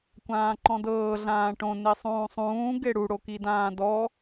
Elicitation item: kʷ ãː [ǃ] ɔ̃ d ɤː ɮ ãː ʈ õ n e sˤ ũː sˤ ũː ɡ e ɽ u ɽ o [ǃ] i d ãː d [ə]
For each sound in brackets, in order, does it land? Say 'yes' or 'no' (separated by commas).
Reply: yes, no, no